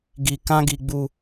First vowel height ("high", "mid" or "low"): high